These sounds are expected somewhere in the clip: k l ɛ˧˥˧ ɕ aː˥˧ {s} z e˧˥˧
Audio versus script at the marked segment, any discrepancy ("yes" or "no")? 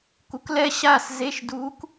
no